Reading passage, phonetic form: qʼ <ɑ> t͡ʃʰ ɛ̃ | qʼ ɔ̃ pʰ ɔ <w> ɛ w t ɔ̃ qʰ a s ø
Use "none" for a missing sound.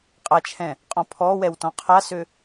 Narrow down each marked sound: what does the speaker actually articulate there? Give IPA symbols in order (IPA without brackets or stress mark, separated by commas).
a, w